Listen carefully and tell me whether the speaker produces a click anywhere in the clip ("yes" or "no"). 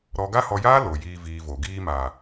no